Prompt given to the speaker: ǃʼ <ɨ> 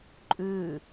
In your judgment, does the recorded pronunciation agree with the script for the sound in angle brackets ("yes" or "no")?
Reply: no